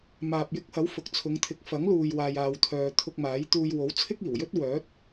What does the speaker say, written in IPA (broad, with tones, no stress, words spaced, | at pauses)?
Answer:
maː˨p̚jɪ˧k̚hɐ˨˥w fʊ˨k̚t͡sʰʊ˨˧ŋt̪ʰɪ˨˥k̚ fɐ˨˥ŋluː˨jwaː˨j aː˨wt̪ʰœː˨ t̪ʰʊ˧k̚maː˨˥jt̪uː˧j wo˨˥wt͡sʰɪ˥k̚iː˨˩wjɵ˥t̚ wœː˨˥t̚